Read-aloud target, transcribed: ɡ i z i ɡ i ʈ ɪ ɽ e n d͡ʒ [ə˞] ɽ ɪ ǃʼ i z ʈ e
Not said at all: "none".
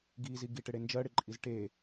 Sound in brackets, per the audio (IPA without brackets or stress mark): ɜ